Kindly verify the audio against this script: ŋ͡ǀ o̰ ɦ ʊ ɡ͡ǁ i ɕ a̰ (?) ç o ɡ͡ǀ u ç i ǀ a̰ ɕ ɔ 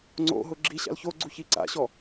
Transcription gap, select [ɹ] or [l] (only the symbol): l